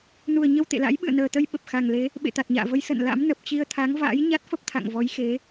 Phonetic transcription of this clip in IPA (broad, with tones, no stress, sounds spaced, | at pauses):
n u˨˩ ə̯ ɲ ə˧ w t̪ ḛ˧˨ l a̰˧˥ j ɓ ɨ̰˧˨ ə̯ n əː˨˩ t̪ ə˧ j ɓ ə˨˩ p̚ x a˨˩ ŋ l e˨˦ | ɓ ḛ˧˨ t̪ a˨˩ t̚ ɲ a̰ː˧˨ v ə˨˦ j s ə̰˧˨ n l a̰˧˥ m n ə˨˩ p̚ t͡ɕ i˧ ə̯ t̪ʰ a˨˦ ŋ v a̰ː˧˥ j ɲ a˦˥ t̚ f ə˦˥ p̚ t̪ʰ a̰˧˨ ŋ v ɔ˨˦ j x e˨˦